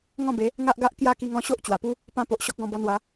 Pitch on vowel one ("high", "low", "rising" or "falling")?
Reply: falling